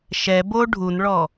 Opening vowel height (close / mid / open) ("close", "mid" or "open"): mid